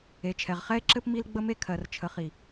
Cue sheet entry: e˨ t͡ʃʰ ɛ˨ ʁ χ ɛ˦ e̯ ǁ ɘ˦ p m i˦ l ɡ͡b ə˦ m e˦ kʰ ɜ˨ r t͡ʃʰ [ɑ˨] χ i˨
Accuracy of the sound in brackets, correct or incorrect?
incorrect